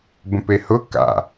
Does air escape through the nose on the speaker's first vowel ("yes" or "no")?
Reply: yes